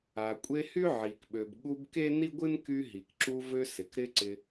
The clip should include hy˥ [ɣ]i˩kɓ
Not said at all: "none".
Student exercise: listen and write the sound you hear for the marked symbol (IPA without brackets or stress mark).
ʕ